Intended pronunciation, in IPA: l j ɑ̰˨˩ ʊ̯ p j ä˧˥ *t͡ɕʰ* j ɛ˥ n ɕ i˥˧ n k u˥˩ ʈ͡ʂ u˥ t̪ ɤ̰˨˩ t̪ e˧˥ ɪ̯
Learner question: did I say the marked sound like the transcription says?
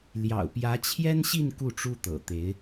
yes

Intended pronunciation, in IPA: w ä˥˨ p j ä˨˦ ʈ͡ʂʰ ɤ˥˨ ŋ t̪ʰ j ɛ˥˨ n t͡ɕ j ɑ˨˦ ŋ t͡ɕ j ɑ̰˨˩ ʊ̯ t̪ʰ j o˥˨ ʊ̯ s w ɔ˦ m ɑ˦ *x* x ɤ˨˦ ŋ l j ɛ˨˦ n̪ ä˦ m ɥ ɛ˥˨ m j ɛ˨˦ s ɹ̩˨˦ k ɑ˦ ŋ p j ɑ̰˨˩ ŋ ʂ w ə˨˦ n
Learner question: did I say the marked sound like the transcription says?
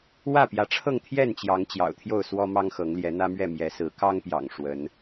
no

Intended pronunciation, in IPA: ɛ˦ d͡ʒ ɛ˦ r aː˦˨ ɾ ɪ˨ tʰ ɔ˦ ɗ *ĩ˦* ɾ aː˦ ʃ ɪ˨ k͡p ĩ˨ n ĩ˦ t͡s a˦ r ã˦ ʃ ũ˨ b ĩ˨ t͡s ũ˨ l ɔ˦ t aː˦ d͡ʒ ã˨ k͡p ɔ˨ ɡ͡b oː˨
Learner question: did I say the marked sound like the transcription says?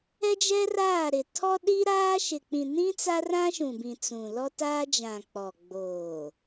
no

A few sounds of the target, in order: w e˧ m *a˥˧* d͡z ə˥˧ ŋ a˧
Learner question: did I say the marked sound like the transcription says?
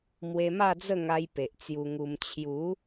yes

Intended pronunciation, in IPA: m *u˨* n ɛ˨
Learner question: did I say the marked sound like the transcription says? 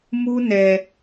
no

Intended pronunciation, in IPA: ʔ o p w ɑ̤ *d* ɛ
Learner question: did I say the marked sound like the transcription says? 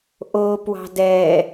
yes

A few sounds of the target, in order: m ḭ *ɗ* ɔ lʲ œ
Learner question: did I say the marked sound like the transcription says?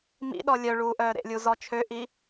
yes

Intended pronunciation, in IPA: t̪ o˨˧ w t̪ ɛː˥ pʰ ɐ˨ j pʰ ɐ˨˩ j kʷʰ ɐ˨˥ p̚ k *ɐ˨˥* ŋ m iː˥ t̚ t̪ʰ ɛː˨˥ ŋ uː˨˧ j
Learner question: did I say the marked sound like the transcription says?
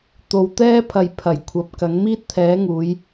yes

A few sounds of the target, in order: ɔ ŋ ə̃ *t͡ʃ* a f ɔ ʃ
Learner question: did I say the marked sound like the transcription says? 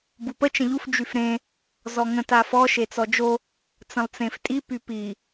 no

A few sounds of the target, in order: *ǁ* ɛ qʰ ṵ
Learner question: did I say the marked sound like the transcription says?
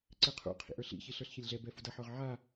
no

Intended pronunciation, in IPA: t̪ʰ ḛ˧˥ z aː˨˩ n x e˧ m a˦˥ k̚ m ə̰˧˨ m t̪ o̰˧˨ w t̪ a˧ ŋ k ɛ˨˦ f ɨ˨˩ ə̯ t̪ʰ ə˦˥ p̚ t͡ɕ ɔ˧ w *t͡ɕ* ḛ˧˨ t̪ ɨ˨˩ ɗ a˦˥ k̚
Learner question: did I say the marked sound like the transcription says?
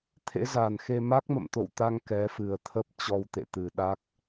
no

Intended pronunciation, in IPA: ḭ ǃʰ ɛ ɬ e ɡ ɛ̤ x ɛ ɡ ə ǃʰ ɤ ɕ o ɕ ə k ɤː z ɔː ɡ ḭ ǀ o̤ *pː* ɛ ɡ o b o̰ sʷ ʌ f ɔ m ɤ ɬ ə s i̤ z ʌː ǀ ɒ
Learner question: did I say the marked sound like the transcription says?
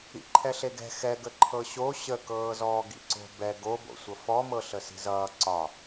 no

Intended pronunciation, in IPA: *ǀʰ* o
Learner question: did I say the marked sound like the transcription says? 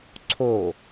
yes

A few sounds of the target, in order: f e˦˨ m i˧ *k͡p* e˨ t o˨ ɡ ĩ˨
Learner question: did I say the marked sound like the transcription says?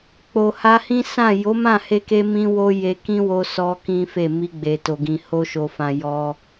no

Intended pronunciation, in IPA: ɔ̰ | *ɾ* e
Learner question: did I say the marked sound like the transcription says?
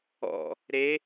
yes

